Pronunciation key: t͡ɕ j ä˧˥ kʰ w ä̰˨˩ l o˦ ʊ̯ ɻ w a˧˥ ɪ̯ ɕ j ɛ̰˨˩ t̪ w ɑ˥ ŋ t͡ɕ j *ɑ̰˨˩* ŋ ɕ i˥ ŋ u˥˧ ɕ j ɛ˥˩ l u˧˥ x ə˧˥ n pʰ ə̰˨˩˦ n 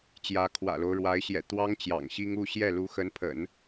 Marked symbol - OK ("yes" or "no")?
yes